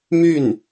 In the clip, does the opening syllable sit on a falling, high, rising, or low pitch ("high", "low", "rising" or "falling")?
falling